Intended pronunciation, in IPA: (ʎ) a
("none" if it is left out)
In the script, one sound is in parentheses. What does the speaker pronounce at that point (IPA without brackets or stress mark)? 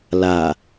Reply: l